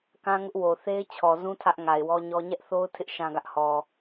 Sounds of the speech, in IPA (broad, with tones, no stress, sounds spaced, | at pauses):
k ã˦ ŋ ʊ˦ ʔ w o˨ θ e˦ ɪ̯ t͡ɕʰ ɔ˨ z ũ˦ tʰ ä˦ ʔ ŋ a˨ ɪ̯ w ɔ˦ ɲ ɔ˦ ɲ ɛ˦ ʔ θ o˦ ʊ̯ tʰ ɪ˦ ʔ ʃ ã˦ ɡ ä˦ ʔ h ɔ˨